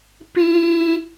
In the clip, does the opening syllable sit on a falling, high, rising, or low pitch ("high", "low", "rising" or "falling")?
high